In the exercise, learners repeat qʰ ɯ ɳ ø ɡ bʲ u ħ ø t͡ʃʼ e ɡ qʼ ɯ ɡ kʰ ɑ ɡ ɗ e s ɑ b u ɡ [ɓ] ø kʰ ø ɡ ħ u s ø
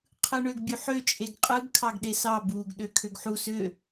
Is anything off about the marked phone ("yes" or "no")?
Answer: yes